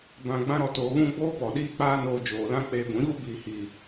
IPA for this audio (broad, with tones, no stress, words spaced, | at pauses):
bã˧ ɡ͡bã˧ɾɔ˨toː˨ɣũ˧ ɡ͡boː˦pɔ˨ ɗiː˦k͡paː˦ noː˧d͡ʒoː˨lã˦ k͡peː˧ɡʷĩ˨˦ɣu˦ biː˨hiː˨